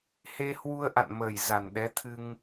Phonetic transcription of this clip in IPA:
he˧hwu˧ə̯ʔa̰˧˨nməː˨˩j za˨˩nɗɛ˨˦t̪ʰɨ˧ŋ

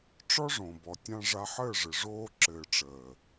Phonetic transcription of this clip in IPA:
ʈ͡ʂɔ˦ʐõ˨bɔ˨ tʲã˧ʐa˧ħəː˦˨ʐɘ˨ ʐoː˦ ǁɘː˨ʈ͡ʂəː˨

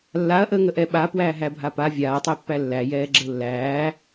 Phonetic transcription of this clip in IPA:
lːaɐ̯ʔəːŋəʔɛ ɓapwæːɦæbʱa pa vʲaːtˤɛpːæ lːæjɛːɡ͡ǁə lːæː

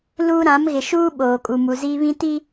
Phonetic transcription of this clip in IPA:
luː˦ ɾã˨˦mɣɪ˨ʃuː˦ ɓoː˨kʼu˨mu˨ ziː˦βĩ˦ti˦

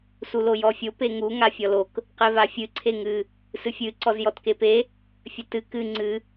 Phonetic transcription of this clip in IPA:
sulojɔfʲo peŋu ŋafʲɔlok | qevafʲɨ ǀʰeŋɨ | sɨfʲɨ ǀɔzjɔtkepe | fʲɘtɨ kɨ ŋ͡ǀɨ

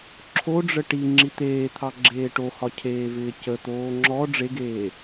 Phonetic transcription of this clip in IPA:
ǁʰoɖ͡ʐə ʈi ŋ͡ǁit̪eːt̪ʰɑ ɡ͡ǁeːʈohɒ cʰeːvɪːcət̪oː ŋ͡ǁɔ ɖ͡ʐeɡeː

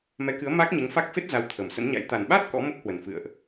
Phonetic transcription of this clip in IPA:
mɛ˨˦kɨ˨˦ə̯ maː˦˥k̚ɲe˨˦ŋfa˦˥k̚ fe˦˥t̚ za˨˦w t̪ʰə˨˩msə̰˧˥nɲa̰˧˥j t̪a˨˩nɓa˦˥t̚ kɔ̰˧˥ mo˦˥k̚hwə˨˩n fɨ̰˧˨ə̯ʔ

